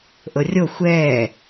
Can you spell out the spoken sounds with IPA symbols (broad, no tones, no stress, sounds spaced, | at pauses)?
ʔ ɤ rʲ o xʷ ɛː